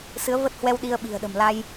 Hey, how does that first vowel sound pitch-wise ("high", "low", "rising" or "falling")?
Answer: rising